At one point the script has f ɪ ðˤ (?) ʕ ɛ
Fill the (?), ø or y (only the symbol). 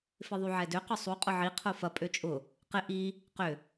y